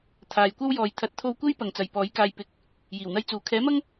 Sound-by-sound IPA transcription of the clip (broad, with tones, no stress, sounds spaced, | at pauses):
t̪ʰ aː˨ j kʷ ɐ˥ w j ɔː˨ j t̪ʰ ɐ˨˥ t̚ t̪ʰ o˧ w kʷ e˥ j p ɐ˨ ŋ t͡s ɐ˨ j p ɔː˨˥ j k aː˧ j p ɪ˨ k̚ | j iː˨˩ w n̪ ɐ˥ j t͡s uː˨ kʰ ɛː˨˥ m ɐ˥ ŋ